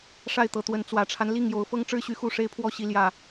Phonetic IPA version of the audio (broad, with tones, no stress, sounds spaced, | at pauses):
ʂ a˥˨ ɪ̯ t̪ ɤ˨˦ t̪ w ə˨˦ n t͡s w ä˨˩ ʈ͡ʂʰ a˦ n l i˥˨ ŋ j o˨˦ ʊ̯ f ɤ˦ ŋ ʈ͡ʂ ɻ̩˦ ɕ y˨˦ x u˥˨ ʂ e˦ ɪ̯ pʰ w ɔ˦ ɕ i˨˦ l j ä˨˩